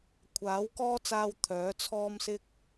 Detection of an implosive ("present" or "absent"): absent